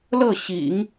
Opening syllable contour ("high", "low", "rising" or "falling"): falling